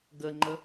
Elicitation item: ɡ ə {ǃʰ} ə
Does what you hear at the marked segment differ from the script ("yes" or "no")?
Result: yes